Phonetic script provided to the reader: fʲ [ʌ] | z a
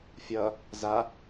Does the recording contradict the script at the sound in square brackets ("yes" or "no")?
no